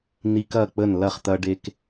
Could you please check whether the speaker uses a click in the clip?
no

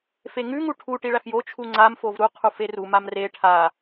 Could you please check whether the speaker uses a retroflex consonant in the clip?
yes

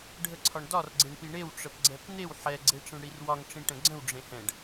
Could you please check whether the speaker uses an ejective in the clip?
no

